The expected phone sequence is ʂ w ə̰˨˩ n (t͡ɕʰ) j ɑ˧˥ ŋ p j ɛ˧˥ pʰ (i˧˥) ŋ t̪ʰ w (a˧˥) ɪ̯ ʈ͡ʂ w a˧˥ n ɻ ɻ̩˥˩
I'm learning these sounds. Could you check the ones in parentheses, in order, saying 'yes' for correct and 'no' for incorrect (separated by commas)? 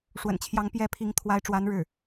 yes, yes, yes